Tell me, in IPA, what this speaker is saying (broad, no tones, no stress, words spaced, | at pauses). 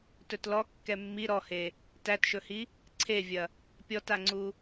tɵtlɔ kːɛmːi ɾɔhe | tætʃɵhi | ǀʰevʲɐ | pʲɔtaŋ͡ǀu